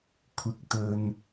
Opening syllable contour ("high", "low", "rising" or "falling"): high